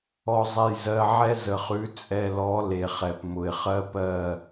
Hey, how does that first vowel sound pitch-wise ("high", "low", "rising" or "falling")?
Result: low